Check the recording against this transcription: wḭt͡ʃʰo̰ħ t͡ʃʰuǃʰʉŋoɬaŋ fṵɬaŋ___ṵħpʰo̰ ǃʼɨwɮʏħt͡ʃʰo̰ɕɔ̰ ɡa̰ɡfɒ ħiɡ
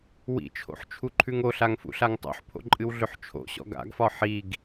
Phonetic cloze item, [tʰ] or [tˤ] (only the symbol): tˤ